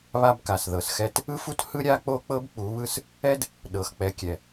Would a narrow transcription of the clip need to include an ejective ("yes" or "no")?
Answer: no